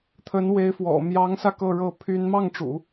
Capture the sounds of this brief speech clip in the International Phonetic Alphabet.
t̪ʰ ə˧˥ n w e˧˥ ɪ̯ f w ɔ̰˨˩ m j ɑ˧˥ ŋ s ä˧ k ɤ˥˧ ɻ ɤ˥˩ pʰ y˥ n m ɑ˥˩ ŋ ʈ͡ʂ ṵ˨˩˦

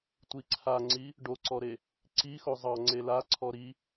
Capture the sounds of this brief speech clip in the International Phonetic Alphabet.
tʷ i ǀʰ a ŋ͡ǀ i | ɖ o ǀ ɔ ɾ e | ǀ i x o zˤ ɑ ŋ͡ǀ e l a ǀʰ ɔ ɾ i

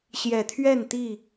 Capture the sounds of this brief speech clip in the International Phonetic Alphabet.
ɕ j ɛ˨˩ t̪ʰ ɥ ɛ˥˨ n t̪ i˥˨

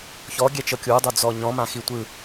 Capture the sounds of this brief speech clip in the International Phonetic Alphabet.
ç ɔ ɡʲ ɛ t͡ʃ ɤ kʲ u dˤ u d͡z ɔ ɲ ɔ̃ m ã x i tʷ ɯ

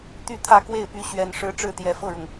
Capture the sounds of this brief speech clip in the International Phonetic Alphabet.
t̪ y˥˧ t̪ʰ ä˥˧ k w e˥˩ ɪ̯ p y˧˥ ɕ ɥ ɛ˨˩ n ʂ ɻ̩˧˥ ʈ͡ʂ ɻ̩˥˩ t̪ j ɛ˨˩ f ɤ˥˩ ɻ ʊ˩ ŋ

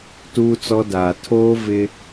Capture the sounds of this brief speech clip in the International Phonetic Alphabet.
t uː˦ t͡s ɔ˦ d aː˨ tʰ oː˦ v ɪ˦

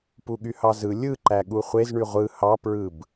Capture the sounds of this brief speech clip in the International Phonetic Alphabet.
p u ɠ y h ɑ z ɯ lʲ ɯ ǃ æ ɠ u χʷ e z ɳ y ʁʷ ɯ h ɑ p ɹ ɯ b

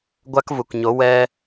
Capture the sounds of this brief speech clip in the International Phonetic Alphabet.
ɡʷ a˦ k v u˨ k ɲ o˨˦ w ɛ˧

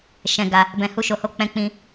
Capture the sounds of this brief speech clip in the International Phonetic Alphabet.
ʃ ɛ̃˧ ɡ a˧ | b ɛ̃˧ h u˦ ʃ o˧ h o˦ k͡p ɛ̃˧ k͡p ĩ˧

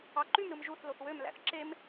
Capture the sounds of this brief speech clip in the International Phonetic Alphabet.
ɑ ǃ y m ɾ ɯ m ʒ u θ l o θ w ø m l æ̰ θ ǁ e m

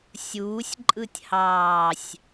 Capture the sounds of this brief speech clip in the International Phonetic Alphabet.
sʲ uː sʲ ǃʼ ɯ tʲ h ɑː sʲ

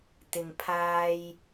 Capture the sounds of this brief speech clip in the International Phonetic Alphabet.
t̪ ɪ˨ ŋ pʰ aː˧ j

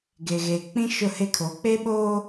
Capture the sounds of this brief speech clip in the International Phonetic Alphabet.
ɡ e˨ ɣ eː˨ k͡p ĩ˦ ʃ ʊ˦˨ h e˦ kʰ oː˨˦ k͡p e˦ ɓ oː˦

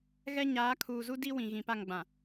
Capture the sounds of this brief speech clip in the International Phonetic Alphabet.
ɣ ɛ˦ ɲ aː˨˦ kʰ uː˨ z u˦ d i˦ w ĩ˨ ɣ ĩ˨ p a˦˨ ŋ ɡ͡b ã˨

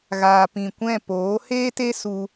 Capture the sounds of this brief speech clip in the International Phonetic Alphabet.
ɣ aː˨ p ĩ˨ kʷ ɛ̃˦˨ p oː˨˦ h eː˦ t e˦ s u˧

